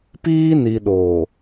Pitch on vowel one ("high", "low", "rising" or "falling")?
high